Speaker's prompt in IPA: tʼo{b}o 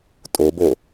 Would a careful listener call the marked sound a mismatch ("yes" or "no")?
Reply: no